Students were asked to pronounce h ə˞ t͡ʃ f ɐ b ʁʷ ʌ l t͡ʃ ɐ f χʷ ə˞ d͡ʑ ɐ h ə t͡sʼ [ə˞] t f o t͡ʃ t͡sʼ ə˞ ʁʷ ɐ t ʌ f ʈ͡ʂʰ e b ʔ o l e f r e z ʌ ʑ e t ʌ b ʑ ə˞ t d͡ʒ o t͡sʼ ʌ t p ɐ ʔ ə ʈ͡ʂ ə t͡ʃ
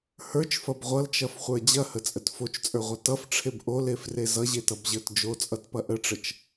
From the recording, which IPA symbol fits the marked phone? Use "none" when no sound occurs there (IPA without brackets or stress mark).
ə